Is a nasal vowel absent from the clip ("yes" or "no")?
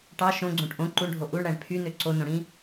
no